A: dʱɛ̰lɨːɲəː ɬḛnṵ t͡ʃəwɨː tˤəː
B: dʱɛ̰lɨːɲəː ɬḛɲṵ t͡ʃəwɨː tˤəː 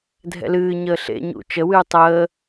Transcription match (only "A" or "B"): B